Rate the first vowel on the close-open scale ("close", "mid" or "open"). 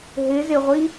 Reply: close